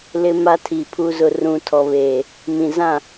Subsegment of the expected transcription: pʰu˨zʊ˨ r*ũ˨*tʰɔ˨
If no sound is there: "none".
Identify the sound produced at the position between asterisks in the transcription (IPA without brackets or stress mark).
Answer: ũ˨